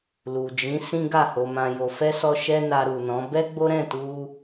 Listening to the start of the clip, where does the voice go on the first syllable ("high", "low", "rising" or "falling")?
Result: low